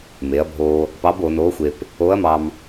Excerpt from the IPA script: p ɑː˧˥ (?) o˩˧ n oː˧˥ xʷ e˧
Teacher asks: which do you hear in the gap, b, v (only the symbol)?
b